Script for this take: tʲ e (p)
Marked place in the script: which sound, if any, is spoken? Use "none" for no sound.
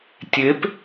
p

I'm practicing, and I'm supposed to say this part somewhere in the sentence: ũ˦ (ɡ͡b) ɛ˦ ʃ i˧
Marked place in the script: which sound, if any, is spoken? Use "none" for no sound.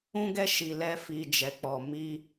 ɡ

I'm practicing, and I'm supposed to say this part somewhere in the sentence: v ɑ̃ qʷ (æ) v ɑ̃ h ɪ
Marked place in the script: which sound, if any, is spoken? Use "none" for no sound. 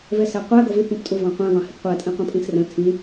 æ̃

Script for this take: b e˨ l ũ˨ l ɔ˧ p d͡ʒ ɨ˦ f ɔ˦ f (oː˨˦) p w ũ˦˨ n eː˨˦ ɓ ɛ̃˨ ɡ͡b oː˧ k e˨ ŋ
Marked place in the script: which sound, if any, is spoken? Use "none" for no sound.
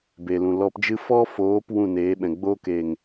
oː˨˦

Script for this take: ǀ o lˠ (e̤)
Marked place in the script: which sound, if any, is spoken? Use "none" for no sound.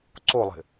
e̤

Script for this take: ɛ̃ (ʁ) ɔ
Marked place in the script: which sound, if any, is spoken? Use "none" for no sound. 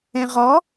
ʁ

